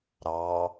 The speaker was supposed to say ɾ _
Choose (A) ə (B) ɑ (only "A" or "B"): B